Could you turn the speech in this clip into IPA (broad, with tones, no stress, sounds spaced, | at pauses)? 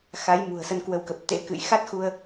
x a˨˦ j m ṳ˨˩ ə̯ s ə˧ n k w ə˨˦ w k ə˨˩ p̚ t̪ ḛ˧˥ k ɨ̰˧˨ j x a˦˥ t̚ x u˧ ə̯